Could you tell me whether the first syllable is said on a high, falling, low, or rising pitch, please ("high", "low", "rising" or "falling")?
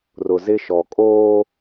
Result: low